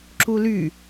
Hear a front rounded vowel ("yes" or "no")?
yes